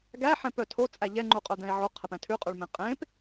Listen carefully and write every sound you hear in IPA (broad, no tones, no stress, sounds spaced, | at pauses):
ɡ æ ħ ɛ̃ p œ tʰ o t͡sʼ æ ʎ ɛ ŋ͡ǃ u qʼ œ d̪ ɛ̃ e̯ ʕ o qʰ ɛ p ɛ̃ tʰ ʉ qʼ ʉ ɭ m ẽ qʼ ẽ p